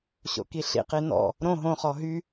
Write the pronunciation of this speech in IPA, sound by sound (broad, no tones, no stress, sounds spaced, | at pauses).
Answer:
ɕ o̰ k i ɬ ḭ q i n ɔ̰ | ɾ õ ɦ õ χ ɔ ɦ y